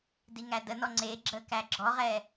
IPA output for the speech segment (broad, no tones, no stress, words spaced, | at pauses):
diŋædənɔ ŋ͡ǀe ɡ͡ǁəkæ ɡ͡ǁɔʁɛ